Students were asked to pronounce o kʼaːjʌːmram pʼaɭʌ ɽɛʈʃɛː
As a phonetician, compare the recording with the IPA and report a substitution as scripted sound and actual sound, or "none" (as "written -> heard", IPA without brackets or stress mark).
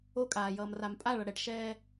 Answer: none